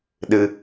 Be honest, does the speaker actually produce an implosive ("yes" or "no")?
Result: yes